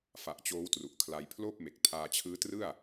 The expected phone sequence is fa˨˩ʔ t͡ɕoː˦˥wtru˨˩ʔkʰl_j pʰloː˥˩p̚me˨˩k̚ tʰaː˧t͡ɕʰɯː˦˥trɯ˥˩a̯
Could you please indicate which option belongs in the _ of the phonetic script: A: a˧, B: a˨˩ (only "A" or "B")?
A